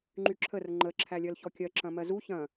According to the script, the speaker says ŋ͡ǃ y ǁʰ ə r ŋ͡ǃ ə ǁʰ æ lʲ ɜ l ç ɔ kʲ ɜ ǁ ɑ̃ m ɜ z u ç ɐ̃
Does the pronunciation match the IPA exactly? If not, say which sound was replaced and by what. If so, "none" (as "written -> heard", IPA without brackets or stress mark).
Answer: ɑ̃ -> ɐ̃